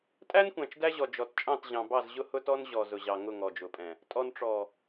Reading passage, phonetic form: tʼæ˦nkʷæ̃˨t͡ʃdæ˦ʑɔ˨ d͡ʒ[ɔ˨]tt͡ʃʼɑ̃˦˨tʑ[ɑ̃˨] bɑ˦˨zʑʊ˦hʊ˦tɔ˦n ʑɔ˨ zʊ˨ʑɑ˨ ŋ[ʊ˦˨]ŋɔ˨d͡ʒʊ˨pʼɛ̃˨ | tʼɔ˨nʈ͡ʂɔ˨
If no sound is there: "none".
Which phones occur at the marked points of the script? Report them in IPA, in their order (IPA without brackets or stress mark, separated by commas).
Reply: ɔ˨, ɑ̃˨, ʊ˦˨